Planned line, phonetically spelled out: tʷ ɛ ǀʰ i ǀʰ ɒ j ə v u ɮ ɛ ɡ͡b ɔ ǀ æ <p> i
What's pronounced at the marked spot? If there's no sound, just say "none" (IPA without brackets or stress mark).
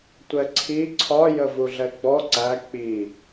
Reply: k͡p